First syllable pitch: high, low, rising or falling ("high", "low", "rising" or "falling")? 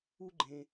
high